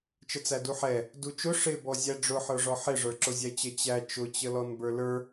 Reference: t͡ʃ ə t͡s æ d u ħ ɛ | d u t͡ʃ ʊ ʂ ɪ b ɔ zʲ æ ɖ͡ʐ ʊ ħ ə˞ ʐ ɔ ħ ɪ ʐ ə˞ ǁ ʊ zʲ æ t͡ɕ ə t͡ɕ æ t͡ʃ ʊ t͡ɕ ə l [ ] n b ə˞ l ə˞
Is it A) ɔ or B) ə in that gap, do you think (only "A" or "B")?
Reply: A